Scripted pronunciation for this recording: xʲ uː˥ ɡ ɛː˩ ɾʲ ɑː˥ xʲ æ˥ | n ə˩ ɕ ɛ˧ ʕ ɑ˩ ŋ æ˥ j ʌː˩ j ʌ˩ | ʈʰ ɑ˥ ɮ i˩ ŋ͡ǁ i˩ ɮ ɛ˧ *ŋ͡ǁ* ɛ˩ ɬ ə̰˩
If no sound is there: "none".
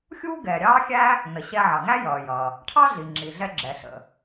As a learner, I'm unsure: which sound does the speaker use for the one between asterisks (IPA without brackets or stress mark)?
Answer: ɡ͡ǁ